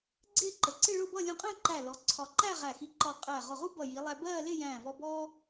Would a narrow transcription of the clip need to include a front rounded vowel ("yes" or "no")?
no